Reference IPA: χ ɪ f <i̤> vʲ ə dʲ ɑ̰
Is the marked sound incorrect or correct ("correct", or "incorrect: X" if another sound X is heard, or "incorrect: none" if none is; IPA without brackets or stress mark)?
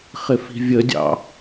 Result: correct